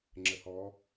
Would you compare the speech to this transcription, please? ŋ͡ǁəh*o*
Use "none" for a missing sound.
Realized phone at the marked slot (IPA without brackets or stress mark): ɔ